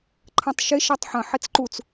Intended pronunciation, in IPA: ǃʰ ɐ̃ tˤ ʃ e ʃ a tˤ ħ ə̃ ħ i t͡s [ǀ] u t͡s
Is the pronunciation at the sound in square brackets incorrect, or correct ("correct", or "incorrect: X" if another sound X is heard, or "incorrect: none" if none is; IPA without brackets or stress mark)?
incorrect: ǃ